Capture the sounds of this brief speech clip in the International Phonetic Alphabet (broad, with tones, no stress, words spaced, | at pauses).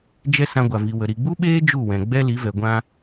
d͡ʒɛ˧ sã˧ɡʷa˨vi˨wə˨ ɾi˨ɡ͡bu˦ɓeː˦ d͡ʒu˦˨wɛ̃˨ɡ͡bɛ˦ li˨˦vɛ˨ ɡʷã˧